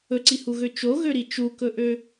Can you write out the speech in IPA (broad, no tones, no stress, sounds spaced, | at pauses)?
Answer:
ɵ ǀ i h u ɣ ø t͡ʃ o ɣ ø ɾ i t͡ʃ u k ɵ ʔ ø